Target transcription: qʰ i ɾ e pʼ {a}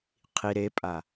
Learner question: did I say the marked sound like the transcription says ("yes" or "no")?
yes